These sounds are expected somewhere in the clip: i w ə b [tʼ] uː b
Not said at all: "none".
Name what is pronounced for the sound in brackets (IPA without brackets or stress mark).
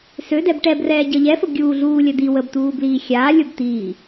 t̪